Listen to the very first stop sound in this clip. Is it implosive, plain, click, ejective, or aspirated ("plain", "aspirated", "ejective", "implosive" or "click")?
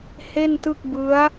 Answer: plain